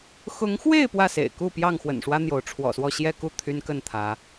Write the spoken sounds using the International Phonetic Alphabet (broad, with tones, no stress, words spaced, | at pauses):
xʊ˨˦ŋxwe˥˨ɪ̯ pwä˥˨sḛ˨˩ɪ̯ku˥˨ pjɑ˥˨ŋxwə̰˨˩nʂwä˦ n̪jo˨˦ʊ̯ʈ͡ʂʰwɔ̰˨˩swɔ˥˨ ɕjɛ˥˨ku˥˨ t̪ʰy˦nkə˥˨nt̪ʰä˨˦